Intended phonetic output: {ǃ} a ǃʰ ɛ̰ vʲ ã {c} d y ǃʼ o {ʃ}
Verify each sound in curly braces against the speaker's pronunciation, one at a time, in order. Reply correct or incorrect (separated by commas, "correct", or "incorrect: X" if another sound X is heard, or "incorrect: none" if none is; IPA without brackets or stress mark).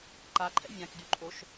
correct, incorrect: k, correct